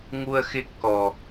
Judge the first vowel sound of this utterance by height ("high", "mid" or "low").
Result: high